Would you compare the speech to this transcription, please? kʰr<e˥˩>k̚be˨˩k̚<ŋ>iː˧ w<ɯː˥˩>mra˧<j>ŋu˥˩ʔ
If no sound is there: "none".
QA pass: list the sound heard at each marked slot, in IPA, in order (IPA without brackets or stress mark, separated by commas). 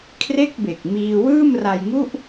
e˥˩, m, ɯː˥˩, j